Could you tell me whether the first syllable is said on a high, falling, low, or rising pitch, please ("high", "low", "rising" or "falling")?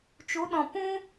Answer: rising